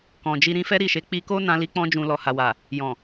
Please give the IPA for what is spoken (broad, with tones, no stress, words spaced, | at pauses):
kɔ̃˨d͡ʒi˧ ɾĩ˧fɛ˦ɾi˦˨ʃe˨˦ k͡pi˧ko˦ nã˧li˧k͡pɔ̃˧d͡ʒũ˨ lɔ˨ ha˨wa˨ | jɔ̃˨